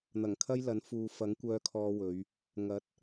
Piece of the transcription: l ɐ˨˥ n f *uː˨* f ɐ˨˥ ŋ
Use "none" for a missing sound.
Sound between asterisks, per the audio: uː˨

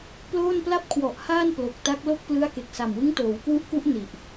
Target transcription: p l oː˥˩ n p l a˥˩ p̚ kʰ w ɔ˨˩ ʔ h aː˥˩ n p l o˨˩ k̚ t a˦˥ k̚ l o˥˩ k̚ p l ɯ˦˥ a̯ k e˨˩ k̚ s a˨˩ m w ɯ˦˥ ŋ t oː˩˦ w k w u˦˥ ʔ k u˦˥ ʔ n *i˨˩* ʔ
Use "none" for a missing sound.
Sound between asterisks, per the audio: i˨˩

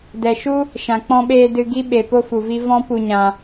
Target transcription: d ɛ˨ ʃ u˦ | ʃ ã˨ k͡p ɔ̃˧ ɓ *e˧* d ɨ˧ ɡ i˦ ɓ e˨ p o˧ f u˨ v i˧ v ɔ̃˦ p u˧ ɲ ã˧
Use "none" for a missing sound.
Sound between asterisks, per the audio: eː˧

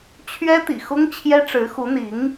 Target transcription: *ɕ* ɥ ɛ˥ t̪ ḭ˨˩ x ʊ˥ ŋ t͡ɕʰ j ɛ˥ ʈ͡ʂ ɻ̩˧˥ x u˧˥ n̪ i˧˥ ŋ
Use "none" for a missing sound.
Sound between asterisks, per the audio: t͡ɕʰ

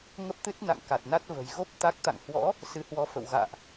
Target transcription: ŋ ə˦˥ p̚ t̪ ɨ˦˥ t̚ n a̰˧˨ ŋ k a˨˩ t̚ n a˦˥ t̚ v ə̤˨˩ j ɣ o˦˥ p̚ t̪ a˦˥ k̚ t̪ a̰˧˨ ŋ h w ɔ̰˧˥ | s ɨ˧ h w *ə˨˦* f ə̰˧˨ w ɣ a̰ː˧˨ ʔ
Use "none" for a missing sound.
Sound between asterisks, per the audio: ɔ˨˦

